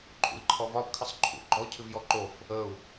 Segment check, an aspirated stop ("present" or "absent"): present